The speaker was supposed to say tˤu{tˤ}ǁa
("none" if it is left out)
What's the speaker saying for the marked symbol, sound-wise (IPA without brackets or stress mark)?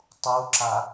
none